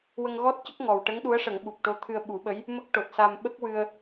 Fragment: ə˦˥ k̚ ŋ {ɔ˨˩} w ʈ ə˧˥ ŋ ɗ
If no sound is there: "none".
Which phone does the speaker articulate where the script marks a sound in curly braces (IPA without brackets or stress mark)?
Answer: ɔ˨˩